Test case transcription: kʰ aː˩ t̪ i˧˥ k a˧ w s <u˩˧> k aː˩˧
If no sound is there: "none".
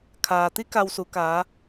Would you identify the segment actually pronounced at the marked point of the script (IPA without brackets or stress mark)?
u˩˧